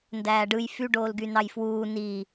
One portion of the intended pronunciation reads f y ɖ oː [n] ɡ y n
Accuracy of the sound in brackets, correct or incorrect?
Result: incorrect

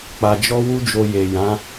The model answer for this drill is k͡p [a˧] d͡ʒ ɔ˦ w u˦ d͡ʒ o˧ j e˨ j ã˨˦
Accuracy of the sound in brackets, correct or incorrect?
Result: correct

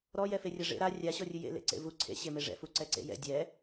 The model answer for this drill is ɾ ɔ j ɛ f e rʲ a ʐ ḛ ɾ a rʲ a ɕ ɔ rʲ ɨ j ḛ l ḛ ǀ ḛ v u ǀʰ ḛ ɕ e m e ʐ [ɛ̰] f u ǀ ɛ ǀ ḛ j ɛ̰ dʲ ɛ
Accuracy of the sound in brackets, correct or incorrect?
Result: correct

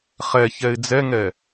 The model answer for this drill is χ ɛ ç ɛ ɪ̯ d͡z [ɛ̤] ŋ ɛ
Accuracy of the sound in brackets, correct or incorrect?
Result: incorrect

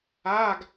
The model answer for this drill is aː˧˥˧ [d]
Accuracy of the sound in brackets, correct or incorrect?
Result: incorrect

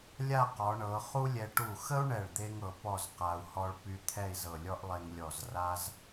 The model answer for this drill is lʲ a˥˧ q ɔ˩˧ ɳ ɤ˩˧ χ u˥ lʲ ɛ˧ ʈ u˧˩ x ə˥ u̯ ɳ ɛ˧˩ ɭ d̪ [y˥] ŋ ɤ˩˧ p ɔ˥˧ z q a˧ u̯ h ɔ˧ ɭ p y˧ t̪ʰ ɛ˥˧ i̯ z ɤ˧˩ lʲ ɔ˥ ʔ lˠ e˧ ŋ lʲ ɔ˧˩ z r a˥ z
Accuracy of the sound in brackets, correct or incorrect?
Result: incorrect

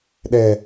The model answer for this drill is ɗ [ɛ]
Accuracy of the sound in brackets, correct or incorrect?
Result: correct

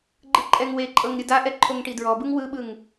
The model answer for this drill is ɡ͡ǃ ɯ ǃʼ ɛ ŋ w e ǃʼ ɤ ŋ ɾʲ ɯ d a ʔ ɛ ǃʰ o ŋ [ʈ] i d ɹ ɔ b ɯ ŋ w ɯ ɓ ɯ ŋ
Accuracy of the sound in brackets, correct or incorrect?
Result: correct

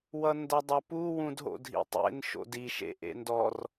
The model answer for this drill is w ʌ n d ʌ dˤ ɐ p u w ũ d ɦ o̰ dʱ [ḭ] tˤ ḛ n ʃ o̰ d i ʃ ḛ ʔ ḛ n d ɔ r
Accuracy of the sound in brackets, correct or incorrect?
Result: correct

